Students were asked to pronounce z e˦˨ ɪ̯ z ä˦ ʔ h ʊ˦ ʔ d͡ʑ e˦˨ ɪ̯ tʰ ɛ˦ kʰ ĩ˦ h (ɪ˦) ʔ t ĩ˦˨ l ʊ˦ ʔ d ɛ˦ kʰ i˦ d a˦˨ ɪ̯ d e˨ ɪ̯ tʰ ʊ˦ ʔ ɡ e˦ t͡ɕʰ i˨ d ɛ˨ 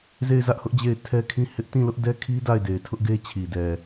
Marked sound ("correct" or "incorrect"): correct